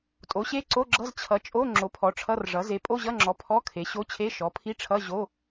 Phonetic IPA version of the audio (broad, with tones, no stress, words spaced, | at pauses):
tʼo˩˥ɕe˧˥˧ǀo˧˥˧ɡ͡ǁʌ˧˥˧z t͡ɕʰʌ˩˥t͡ʃʼo˧˥˧ ŋ͡ǁo˩˥pʰɔ˩˥ ʈ͡ʂʰʌ˧˥˧rʐʌ˩˥ ze˩˥pʼo˧˥˧ʑʌ˧˥˧ŋ͡ǁɔ˩˥ pʰɔ˧˥˧kʰe˩˥ɕo˧˥˧t͡ɕʰe˧˥˧ ʃɔ˩˥pʰi˧˥˧ʈ͡ʂʰʌ˧˥˧ ʑo˧˥˧